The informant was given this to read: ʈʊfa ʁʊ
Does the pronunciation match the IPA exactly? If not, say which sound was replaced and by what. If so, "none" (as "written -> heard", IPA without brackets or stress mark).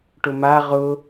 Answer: f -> m